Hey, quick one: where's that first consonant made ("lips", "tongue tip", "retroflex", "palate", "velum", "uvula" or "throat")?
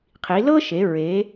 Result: uvula